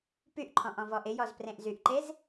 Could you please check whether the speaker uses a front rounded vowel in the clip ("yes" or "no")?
yes